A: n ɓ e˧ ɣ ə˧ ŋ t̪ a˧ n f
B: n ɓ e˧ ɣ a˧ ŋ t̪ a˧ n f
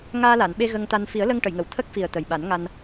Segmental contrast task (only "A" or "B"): A